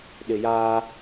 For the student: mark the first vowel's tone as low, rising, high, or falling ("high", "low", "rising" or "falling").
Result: low